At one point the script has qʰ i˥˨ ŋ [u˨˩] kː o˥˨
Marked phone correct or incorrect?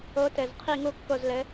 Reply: incorrect